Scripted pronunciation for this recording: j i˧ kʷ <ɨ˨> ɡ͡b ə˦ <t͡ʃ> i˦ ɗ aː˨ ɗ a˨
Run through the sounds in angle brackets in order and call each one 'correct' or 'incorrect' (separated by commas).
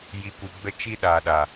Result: incorrect, correct